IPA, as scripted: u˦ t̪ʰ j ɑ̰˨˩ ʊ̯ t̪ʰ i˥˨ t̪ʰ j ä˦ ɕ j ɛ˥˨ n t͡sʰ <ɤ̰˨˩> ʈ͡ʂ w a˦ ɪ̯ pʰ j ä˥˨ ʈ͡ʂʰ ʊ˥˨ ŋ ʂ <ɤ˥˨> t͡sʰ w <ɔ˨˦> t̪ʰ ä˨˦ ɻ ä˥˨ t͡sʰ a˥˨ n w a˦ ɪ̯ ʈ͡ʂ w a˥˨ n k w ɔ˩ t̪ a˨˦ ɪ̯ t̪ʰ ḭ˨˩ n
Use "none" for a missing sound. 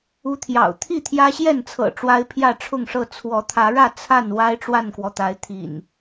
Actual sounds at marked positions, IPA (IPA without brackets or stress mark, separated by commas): ɤ̰˨˩, ɤ˥˨, ɔ˨˦